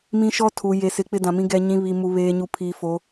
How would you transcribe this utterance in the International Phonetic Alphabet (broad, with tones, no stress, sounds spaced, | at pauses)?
m ĩ˦ ʃ ɔ˦ tʰ u˨ j e˨ s ɪ˨ k͡p ɪ˦ d ã˨ m ĩ˦ ɡ ɛ˨ ɲ ĩ˨ β i˨ m u˨ β eː˨ ɲ u˨ pʰ i˨ f o˨˦